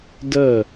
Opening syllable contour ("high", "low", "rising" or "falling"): falling